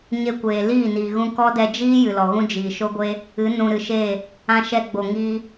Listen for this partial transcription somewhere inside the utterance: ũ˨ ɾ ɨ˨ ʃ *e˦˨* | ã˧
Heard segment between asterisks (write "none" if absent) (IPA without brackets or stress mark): e˦˨